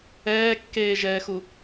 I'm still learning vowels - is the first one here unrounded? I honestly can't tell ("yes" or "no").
yes